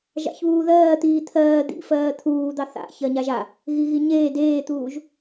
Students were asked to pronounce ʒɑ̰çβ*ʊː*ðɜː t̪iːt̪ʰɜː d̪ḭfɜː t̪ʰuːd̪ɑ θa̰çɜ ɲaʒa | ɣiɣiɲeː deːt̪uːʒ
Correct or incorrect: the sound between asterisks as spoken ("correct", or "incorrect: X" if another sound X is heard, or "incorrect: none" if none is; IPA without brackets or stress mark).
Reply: incorrect: uː